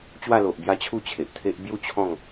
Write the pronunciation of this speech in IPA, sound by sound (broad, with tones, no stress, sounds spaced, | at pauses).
t͡ɕ w a˥˧ l o˨ ʔ b j a˦ t͡ɕʰ u˥˧ t͡ɕʰ e˨ ʔ t̪ʰ e˦ ʔ b j u˥˧ t͡ɕʰ ɔ̃˥˧ ŋ